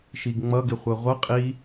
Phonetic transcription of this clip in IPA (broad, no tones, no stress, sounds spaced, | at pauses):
ʃ i ɡ ŋ͡m ʌ ɡ ɪ χʷ ɜ ʁʷ ʌ qʼ i